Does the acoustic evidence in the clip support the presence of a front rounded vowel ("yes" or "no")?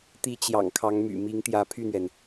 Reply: yes